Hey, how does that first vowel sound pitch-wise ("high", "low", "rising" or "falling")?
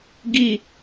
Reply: falling